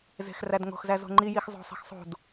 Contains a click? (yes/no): yes